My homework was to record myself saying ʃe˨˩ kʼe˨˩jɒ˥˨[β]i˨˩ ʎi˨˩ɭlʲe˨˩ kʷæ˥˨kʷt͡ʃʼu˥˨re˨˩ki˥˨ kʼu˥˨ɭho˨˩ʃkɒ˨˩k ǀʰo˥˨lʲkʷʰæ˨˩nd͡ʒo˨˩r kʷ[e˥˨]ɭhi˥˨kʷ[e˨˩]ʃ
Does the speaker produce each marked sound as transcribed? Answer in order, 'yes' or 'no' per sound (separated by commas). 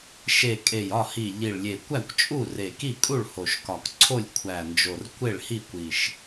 no, yes, no